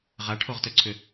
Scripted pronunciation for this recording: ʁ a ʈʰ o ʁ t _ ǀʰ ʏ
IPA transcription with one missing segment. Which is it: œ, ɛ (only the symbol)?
œ